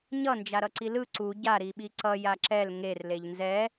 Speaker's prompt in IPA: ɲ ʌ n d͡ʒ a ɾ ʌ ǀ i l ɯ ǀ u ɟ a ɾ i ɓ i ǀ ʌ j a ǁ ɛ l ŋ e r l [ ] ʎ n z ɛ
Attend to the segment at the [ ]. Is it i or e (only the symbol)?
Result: e